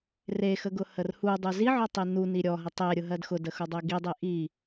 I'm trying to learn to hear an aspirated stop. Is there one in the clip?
no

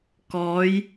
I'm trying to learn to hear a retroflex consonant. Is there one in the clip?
no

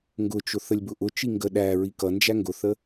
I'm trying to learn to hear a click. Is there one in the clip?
no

